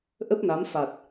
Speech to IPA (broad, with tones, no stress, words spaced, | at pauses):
ʔə˦˥p̚na˨˦m fa˨˩t̚